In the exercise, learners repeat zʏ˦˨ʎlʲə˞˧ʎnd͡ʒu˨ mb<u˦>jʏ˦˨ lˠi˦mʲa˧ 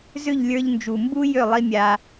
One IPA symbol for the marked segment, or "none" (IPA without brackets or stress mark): u˦